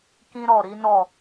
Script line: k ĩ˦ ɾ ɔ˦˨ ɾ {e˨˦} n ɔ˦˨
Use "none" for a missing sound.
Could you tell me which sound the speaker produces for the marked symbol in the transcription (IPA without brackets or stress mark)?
i˨˦